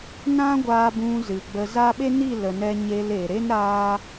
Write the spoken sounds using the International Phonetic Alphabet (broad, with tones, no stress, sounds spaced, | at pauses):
n ã˦ ɡʷ aː˧ b ũ˧ z ɨ˨ ɡ͡b ə˧ z a˦ ɓ e˦ n i˦˨ l ə˨ n ɛ˧ ɲ e˧ l e˨ ɾ e˦ n ɾ aː˦